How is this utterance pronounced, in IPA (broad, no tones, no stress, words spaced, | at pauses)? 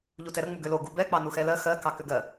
ʎutɛɾə ŋ͡muɡʏlo ɡubɛ k͡pɑnuxɛlɜ xɜ kɑkʏɡɜ